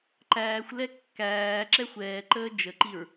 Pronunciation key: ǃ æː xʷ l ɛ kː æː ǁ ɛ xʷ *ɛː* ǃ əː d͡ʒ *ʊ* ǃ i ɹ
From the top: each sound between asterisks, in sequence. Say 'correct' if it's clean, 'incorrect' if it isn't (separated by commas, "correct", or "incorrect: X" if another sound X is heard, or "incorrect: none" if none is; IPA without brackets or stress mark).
correct, incorrect: ə